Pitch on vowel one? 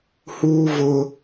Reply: high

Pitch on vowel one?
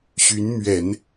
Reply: rising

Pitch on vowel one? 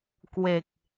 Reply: low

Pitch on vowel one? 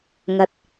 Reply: low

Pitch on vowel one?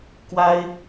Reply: high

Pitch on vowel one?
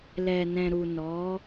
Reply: low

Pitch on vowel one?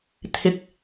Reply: low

